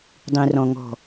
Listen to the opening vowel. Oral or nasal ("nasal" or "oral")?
nasal